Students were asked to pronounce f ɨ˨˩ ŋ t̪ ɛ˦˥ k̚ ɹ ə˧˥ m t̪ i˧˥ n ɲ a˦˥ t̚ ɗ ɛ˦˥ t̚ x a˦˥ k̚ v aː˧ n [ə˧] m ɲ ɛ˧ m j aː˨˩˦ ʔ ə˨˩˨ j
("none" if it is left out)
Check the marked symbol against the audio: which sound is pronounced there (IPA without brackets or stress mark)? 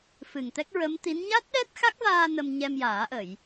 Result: ə˧